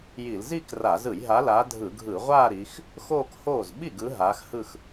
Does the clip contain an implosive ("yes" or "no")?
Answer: yes